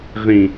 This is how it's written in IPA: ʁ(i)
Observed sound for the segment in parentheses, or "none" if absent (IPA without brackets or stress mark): ĩ